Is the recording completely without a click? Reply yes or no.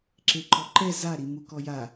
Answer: no